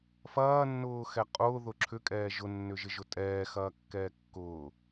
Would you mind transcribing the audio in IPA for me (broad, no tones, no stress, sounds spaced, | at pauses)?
f ɐː nː ʊː x ɛ qʼ ʊː ð ʊ ǁʰ ʏ kʼ ɛː ʒ ʊ nː ʏ ʒ ɪ ʒ ʊ tʼ ɛː x ɐː kː ɛː kː ʊː